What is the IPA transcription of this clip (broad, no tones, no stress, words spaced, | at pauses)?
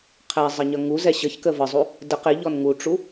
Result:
qʰæzˤəɲʌ ŋuzɛ ɕəçkə vəzˤu | də qɪʎɔn ŋuʈ͡ʂu